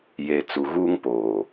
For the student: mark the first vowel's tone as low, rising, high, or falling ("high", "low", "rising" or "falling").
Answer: low